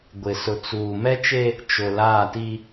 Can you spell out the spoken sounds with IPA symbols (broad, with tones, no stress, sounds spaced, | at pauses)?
ɡʷ ɪ˨ s ʊ˨ t͡s uː˨ m ɛ˦ t͡ʃ e˦ | t͡ʃ ʊ˨ l aː˦˨ t i˦